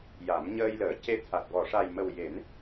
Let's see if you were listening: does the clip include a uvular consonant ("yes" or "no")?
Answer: no